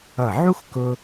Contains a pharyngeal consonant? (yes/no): yes